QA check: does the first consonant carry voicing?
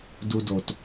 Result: yes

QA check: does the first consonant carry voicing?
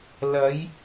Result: yes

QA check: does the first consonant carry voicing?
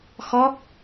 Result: no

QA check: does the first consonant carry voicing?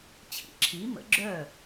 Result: no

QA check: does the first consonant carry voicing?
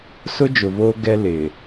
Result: no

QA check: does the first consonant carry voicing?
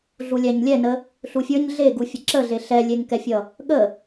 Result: yes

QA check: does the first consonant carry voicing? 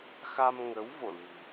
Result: no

